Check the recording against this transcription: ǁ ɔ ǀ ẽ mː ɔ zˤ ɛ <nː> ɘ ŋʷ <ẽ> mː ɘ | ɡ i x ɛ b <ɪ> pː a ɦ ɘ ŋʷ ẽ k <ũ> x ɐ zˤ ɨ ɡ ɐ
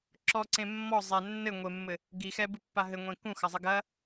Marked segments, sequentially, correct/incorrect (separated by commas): correct, incorrect, incorrect, correct